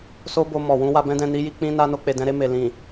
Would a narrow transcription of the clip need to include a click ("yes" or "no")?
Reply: no